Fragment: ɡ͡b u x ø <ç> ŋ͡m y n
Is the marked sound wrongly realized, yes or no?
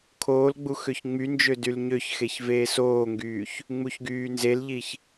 no